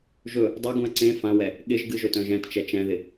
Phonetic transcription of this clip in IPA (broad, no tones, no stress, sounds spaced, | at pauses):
ʒ ɵ | dˤ ɛ ɡ ũ ɐ̯ ǀ ẽ f ã w ɛ | ɠ ɪ ʒ ɡ ɨ ʒ ɵ t œ̃ ʒ ɛ̃ t t͡ʃ ɛ t͡ʃ ɛ̃ ð ɪ